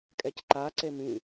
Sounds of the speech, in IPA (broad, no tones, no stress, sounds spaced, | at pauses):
kʼ ɛ c ǃ a ǀ e m ĩ